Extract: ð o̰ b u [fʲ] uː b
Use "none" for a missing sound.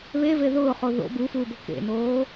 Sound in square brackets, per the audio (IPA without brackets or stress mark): f